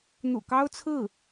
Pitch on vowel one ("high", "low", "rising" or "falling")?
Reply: low